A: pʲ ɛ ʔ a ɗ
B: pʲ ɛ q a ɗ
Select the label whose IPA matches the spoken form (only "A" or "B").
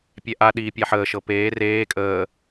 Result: A